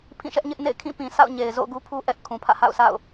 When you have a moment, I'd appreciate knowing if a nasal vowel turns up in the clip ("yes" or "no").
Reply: yes